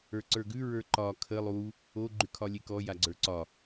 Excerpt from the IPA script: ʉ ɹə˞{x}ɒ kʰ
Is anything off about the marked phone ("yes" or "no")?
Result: yes